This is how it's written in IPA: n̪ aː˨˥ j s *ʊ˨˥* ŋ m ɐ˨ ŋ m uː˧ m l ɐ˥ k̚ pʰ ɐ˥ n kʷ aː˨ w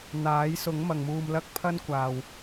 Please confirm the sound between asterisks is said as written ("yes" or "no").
yes